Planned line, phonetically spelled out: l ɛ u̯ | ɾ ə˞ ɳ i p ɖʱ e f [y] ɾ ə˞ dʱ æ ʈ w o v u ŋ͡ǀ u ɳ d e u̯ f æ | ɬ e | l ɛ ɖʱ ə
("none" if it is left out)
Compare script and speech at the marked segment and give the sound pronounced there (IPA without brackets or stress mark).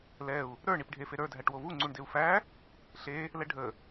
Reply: e